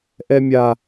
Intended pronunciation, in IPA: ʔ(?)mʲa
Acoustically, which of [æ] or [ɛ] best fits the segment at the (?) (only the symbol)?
ɛ